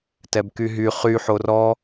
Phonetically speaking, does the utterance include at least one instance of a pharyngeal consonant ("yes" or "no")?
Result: yes